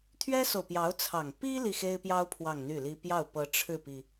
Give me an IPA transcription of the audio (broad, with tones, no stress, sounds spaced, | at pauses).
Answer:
t̪ʰ ɥ ɛ˥ s o˨ ʊ̯ p j ɑ˧˥ ʊ̯ t͡sʰ ɑ˨˩ ŋ p i˥ l i˥˩ x e˥ ɪ̯ p j ɑ˥ ʊ̯ pʰ w ɑ˥˧ ŋ n̪ y˥˩ l i˥ p j ɑ˥˩ ʊ̯ p ɤ˧˥ ʈ͡ʂʰ ɻ̩˥˩ p i˩